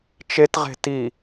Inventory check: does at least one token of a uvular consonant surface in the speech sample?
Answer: yes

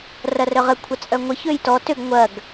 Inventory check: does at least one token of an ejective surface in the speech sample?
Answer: yes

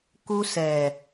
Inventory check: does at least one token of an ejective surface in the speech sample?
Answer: no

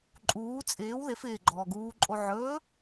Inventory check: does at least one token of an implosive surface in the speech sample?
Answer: no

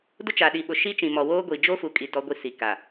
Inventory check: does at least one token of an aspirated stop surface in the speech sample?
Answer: no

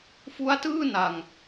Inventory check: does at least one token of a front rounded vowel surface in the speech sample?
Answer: no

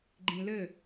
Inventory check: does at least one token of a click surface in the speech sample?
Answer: yes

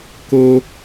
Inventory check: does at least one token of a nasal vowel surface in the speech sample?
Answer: no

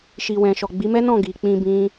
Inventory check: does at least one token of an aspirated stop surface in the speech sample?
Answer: no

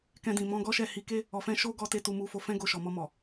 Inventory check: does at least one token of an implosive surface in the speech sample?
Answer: no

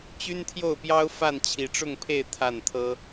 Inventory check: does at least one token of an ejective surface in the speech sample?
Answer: no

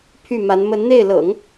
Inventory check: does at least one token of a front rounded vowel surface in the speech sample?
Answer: yes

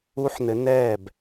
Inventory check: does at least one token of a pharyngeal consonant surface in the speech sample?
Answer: yes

